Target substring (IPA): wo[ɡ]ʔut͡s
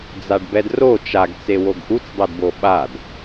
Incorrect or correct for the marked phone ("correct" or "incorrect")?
correct